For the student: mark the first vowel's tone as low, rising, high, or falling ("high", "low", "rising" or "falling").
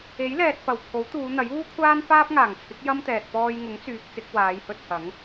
rising